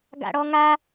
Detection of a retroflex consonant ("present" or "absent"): present